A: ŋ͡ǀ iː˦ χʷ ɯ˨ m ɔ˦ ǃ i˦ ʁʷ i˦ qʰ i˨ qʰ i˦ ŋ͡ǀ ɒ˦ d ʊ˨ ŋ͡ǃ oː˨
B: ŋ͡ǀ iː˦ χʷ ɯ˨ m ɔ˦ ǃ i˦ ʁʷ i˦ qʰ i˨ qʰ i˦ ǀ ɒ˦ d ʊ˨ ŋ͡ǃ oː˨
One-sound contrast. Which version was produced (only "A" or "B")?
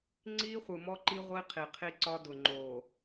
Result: B